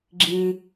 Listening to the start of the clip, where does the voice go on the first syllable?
high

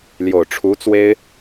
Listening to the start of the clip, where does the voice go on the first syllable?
low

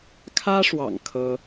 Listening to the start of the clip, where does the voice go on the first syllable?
high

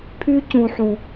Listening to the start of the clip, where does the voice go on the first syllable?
high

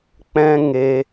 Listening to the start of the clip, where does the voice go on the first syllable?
high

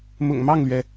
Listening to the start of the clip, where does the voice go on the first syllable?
low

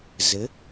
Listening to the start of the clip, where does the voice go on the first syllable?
rising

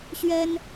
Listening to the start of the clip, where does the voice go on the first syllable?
high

